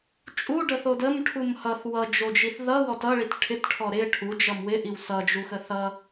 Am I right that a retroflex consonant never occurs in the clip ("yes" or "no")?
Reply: no